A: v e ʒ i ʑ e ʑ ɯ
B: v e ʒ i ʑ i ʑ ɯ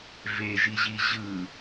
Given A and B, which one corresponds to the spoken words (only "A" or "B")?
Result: B